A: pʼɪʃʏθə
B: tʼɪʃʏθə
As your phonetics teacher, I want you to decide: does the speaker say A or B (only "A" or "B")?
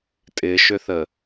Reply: B